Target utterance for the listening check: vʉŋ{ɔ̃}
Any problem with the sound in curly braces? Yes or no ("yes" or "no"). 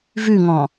no